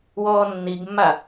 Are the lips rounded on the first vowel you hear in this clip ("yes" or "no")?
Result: yes